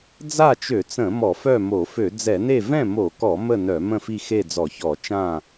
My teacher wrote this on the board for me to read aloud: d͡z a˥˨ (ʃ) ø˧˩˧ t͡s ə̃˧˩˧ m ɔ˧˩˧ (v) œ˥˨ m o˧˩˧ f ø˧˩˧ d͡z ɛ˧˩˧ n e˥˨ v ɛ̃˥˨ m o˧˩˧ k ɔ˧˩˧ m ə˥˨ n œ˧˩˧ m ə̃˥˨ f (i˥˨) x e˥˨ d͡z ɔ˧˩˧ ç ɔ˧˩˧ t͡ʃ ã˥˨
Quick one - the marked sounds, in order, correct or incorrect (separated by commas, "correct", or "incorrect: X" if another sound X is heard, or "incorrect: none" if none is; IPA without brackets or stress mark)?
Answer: incorrect: t͡ʃ, incorrect: f, correct